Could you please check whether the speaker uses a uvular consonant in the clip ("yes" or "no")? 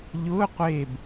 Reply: yes